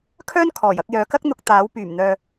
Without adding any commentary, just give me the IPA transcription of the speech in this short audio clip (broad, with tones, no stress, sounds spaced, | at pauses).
kʰ œː˥ n kʰ ɔː˨˩ j ɐ˧ k̚ j œː˨ k ɐ˥ k̚ n̪ ʊ˧ k̚ t̪ aː˨˥ w p yː˨˩ m n̪ œː˨